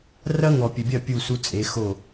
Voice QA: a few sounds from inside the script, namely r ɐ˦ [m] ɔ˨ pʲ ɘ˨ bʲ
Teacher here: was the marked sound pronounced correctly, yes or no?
no